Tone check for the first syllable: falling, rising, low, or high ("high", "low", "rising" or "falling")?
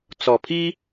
low